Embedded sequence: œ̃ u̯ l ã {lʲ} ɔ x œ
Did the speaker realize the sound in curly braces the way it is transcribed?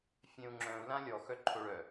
yes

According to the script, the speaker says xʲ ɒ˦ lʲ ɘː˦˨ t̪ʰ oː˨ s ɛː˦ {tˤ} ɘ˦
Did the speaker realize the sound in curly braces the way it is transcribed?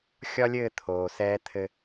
no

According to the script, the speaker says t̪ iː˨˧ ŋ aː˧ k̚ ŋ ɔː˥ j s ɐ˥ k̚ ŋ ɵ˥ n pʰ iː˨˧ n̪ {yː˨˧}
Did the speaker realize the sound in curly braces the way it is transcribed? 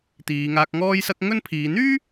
no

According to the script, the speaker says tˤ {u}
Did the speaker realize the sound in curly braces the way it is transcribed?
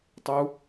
yes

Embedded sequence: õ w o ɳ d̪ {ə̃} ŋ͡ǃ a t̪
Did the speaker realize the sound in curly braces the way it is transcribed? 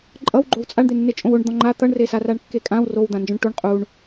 no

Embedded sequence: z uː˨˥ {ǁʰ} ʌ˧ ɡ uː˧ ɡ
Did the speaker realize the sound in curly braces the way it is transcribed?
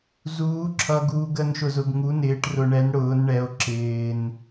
yes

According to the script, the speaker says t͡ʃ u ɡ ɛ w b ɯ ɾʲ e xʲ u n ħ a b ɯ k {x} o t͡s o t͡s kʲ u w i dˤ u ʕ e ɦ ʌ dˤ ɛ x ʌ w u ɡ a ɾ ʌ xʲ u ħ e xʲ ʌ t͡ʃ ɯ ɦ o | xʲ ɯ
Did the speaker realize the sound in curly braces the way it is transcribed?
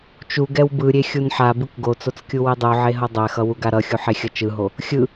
no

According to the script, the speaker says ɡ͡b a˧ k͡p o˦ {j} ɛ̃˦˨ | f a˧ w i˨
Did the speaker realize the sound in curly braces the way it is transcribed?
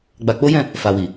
yes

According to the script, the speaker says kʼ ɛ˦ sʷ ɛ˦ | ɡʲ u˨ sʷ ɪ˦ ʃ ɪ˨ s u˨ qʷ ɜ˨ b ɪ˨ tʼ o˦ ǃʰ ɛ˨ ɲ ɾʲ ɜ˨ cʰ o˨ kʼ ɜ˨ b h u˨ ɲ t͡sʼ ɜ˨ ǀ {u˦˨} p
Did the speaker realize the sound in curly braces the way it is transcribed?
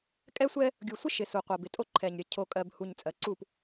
yes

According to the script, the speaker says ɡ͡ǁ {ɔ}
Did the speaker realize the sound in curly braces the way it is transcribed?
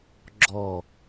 yes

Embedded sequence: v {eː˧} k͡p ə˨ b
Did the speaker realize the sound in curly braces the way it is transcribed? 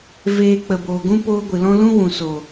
yes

